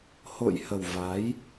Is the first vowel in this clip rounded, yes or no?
yes